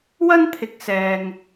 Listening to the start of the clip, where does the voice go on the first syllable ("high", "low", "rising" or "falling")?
high